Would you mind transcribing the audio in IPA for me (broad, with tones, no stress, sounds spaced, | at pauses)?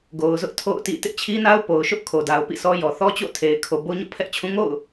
ɡ o˨ ʊ̯ z ʊ˦ ʔ tʰ o̰˦˨ ʊ̯ t ḭ˦˨ t ɪ˦ ʔ t͡ɕʰ i˦ n a˦ ʊ̯ p o˨ ʊ̯ ʃ ʊ˦ ʔ kʰ o˨ d a˨ ʊ̯ p ḭ˦˨ sʰ ɔ˦ j ɔ˨ θ ɔ˦ t͡ɕ o̰˦˨ tʰ e˨ ɪ̯ kʰ o˨ b o˦ ɲ o̰˦˨ pʰ ɛ˦ ʔ t͡ɕʰ ũ˦ ŋ o̰˦˨ ʊ̯